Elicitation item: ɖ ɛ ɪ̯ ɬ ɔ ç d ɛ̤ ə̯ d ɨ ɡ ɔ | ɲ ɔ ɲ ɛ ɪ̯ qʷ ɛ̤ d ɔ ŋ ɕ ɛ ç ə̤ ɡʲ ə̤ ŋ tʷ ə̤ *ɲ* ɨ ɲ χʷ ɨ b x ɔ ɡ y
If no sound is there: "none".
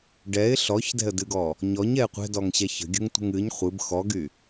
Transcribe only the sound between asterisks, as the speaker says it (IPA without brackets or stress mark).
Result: ŋ